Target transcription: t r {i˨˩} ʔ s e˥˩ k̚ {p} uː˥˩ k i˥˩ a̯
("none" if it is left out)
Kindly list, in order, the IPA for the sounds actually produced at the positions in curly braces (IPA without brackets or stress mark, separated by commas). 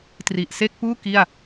i˨˩, p